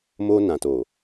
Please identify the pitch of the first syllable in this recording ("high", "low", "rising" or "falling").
high